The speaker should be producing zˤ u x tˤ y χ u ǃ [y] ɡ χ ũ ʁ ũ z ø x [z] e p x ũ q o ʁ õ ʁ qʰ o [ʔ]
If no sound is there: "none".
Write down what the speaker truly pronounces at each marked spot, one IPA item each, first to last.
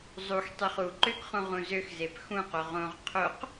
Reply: ø, z, q

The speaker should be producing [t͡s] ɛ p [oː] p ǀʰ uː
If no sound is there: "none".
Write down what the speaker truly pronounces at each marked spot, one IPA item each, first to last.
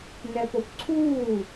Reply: n, o

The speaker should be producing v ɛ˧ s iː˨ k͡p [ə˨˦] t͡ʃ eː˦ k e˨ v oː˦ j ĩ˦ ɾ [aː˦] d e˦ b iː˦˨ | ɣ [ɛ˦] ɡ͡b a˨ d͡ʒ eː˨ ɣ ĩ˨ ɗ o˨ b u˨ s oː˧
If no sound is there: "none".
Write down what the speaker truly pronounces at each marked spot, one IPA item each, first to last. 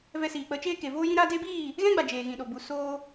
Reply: ə˨˦, aː˦, ɛ̃˦

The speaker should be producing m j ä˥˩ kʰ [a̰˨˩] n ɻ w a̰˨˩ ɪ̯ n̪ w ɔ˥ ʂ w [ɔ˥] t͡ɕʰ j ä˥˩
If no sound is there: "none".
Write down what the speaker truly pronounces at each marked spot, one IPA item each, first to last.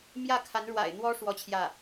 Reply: a˧˥, ɔ˥

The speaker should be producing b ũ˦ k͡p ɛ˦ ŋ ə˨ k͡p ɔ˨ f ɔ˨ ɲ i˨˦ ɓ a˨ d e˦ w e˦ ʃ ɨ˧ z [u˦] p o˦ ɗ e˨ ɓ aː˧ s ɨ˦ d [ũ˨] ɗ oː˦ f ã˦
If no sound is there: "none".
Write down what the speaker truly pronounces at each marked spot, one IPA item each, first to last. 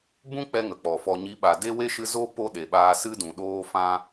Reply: o˦, ũ˨

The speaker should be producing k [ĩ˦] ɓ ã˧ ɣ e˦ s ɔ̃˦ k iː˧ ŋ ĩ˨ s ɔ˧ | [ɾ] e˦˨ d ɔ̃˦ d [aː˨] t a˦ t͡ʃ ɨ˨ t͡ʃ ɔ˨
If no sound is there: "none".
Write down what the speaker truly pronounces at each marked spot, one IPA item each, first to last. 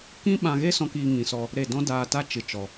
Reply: ĩ˦, ɾ, aː˧

